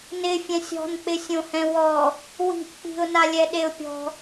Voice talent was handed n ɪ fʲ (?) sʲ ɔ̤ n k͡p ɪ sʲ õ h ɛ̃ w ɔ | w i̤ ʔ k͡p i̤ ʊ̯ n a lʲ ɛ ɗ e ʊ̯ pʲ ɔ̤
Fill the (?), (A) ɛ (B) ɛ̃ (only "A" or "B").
B